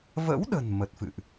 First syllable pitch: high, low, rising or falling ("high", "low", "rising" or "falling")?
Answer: rising